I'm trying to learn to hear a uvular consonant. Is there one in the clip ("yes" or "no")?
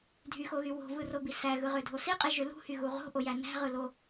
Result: yes